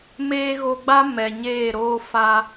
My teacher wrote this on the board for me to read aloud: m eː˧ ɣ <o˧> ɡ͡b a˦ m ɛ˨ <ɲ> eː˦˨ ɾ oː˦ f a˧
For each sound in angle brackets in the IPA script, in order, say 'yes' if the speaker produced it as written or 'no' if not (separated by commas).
yes, yes